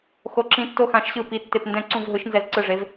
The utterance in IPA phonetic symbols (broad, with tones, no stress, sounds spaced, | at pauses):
x o˩˥ ǁ ĩ˩˥ tː o˧˩ x ã˩˥ ʃ ɕ ɯ˧˩ p i˩˥ tː e˧˩ p n d ɛ̃˧˩ ǀ ũ˧˩ v ɦ ɯ˩˥ ʃ n z ɛ˧˩ z ǀ ɯ˧˩ ʐ e˩˥ v